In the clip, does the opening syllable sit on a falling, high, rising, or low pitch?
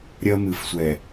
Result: high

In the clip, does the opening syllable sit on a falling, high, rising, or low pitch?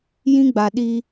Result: high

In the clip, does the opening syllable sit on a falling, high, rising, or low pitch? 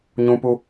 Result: high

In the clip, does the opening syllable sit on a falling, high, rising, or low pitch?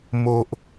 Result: high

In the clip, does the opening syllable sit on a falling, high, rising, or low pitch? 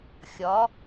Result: rising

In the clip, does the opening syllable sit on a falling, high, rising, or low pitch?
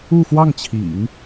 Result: falling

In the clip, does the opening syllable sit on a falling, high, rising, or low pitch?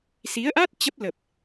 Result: rising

